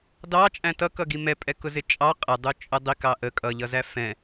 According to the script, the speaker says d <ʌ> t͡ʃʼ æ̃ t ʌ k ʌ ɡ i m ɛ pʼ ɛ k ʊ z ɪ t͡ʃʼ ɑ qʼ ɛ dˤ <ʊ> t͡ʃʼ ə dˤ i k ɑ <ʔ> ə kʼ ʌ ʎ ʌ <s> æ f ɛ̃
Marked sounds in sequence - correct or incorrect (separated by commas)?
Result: incorrect, incorrect, correct, incorrect